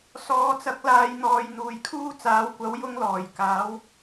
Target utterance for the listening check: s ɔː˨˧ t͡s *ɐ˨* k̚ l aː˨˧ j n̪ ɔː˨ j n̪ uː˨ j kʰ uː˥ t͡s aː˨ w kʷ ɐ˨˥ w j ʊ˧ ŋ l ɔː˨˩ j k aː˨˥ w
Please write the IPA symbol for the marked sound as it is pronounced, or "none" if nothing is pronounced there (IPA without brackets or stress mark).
ɐ˨˥